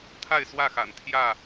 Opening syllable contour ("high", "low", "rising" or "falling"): falling